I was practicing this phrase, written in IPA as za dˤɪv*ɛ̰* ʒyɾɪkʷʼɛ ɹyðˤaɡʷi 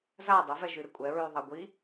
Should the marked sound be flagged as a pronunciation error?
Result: yes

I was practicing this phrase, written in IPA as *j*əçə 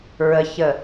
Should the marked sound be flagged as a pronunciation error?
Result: yes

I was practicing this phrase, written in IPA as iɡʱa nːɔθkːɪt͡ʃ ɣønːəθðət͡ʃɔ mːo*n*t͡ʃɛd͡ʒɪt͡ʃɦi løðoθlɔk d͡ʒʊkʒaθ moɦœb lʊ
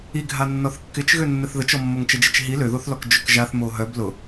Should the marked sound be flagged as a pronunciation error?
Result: yes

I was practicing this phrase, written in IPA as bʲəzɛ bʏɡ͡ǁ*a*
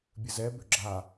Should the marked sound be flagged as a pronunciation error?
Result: no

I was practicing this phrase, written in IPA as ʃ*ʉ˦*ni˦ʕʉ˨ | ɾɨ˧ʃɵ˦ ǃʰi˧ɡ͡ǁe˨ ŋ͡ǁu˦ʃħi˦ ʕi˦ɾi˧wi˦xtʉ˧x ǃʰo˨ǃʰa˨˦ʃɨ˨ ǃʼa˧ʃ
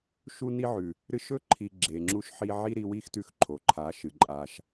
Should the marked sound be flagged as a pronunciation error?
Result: yes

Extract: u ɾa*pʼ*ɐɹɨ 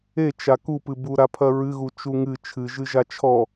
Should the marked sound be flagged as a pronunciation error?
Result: yes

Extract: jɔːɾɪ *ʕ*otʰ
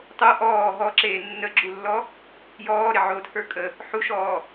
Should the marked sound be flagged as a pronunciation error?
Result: no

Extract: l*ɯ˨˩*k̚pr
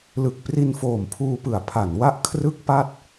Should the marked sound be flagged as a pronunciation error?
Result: no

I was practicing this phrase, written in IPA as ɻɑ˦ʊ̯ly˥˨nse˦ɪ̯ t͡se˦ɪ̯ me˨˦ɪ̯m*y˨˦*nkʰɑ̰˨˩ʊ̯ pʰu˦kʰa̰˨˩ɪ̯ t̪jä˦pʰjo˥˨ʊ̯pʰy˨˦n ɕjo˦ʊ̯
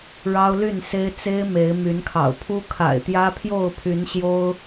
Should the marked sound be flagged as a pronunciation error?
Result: no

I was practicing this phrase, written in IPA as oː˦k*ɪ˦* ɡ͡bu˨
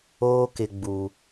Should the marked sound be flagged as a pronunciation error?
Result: yes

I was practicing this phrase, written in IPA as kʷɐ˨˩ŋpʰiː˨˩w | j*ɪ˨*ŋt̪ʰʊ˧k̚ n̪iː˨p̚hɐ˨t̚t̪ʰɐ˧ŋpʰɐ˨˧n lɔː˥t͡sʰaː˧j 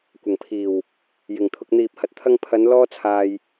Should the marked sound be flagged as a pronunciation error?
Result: no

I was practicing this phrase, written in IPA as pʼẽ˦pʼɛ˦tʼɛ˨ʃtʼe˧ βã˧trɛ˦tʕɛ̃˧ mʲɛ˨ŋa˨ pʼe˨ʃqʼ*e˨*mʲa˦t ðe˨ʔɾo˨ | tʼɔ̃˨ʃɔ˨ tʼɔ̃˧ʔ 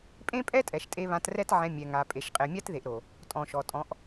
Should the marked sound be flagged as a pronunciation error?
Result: no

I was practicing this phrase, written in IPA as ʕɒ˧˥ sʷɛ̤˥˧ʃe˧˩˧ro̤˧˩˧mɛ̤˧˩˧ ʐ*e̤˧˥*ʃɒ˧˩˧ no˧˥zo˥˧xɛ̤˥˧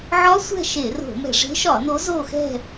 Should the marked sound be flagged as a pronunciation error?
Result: no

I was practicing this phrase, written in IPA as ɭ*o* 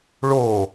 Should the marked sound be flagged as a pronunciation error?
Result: no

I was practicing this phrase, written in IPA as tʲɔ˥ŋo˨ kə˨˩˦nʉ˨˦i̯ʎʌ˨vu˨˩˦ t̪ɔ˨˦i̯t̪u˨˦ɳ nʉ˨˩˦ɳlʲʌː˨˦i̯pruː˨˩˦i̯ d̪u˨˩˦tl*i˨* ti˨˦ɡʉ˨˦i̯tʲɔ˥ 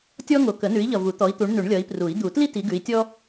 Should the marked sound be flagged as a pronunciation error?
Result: yes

